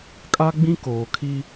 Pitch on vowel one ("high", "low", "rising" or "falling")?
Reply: high